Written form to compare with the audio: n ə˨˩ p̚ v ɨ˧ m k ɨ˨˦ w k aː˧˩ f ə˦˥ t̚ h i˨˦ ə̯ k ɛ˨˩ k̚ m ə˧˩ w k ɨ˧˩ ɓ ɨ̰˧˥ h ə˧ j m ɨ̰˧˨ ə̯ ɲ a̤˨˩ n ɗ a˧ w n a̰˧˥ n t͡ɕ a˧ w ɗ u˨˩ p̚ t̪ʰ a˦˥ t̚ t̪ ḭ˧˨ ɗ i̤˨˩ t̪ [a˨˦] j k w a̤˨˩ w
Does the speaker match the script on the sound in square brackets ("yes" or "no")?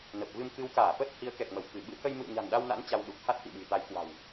yes